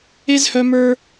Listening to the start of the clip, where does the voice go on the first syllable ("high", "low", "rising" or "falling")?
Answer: high